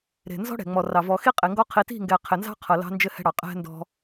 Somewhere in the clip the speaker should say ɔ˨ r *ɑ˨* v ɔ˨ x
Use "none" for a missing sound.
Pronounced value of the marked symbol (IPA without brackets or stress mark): ɑ˨